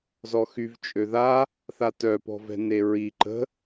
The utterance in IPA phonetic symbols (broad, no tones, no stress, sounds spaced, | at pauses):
z ɔ x y v t͡ʃʼ ø ð a | θ a t œ p ɔ̤ v ɛ̤ n e ɹ i ǃ ə̤